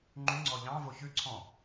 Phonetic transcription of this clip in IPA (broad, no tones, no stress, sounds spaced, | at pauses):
ŋ͡ǃ y ŋ͡ǀ ɔ ʎ ɑ̃ v o ç ʉ ǀʰ ɔ̃